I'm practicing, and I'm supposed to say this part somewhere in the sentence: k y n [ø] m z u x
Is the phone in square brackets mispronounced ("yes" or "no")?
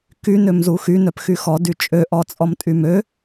no